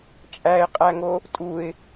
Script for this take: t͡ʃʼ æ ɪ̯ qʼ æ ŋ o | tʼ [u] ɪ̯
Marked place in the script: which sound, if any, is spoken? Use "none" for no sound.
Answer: u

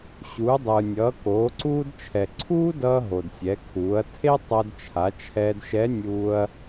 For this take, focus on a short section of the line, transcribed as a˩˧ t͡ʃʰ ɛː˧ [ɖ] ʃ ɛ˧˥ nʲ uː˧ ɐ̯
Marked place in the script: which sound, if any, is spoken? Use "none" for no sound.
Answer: d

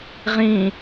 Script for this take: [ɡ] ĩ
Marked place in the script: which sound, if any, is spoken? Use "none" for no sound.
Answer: ʁ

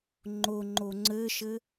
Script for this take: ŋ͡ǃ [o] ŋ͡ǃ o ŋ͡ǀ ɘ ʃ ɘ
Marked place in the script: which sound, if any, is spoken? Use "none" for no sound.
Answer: o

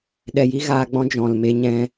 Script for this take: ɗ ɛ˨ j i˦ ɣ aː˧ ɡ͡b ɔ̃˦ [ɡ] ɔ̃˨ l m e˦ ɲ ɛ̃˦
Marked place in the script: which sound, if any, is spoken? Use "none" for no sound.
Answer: d͡ʒ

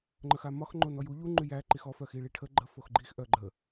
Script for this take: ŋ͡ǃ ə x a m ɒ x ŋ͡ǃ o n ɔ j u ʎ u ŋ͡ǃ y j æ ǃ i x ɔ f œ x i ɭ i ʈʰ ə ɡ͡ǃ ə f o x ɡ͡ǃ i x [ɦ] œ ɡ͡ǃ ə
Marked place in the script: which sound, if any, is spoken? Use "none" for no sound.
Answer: ʔ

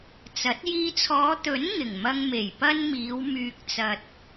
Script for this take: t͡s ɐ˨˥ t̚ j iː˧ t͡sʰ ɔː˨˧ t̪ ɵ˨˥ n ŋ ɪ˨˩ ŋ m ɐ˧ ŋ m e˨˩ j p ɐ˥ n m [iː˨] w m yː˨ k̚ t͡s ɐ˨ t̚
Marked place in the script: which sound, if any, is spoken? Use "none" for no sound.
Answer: iː˨˧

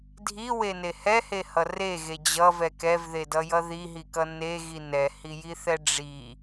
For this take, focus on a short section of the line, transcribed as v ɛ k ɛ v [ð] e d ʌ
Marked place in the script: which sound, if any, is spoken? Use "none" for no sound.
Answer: ð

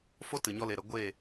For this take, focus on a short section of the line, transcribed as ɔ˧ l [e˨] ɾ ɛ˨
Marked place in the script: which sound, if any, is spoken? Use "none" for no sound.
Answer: e˨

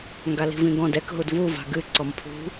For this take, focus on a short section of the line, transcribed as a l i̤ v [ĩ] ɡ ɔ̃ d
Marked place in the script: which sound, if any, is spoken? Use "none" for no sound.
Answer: ĩ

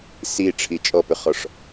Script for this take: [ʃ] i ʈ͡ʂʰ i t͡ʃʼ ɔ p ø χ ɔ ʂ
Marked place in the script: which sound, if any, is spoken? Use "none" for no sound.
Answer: s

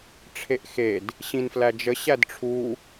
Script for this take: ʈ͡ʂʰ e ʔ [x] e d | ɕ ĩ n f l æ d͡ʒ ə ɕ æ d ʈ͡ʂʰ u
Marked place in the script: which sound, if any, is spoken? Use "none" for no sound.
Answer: x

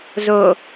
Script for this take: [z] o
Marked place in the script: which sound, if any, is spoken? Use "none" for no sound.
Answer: z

